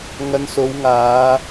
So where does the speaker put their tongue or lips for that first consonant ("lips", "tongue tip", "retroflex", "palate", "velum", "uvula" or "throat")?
velum